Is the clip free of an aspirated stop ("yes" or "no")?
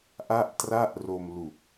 yes